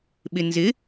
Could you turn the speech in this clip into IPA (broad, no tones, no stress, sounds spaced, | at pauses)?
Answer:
ɓ ɪ n z ɪ